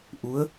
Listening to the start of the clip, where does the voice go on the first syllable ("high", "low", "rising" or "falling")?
rising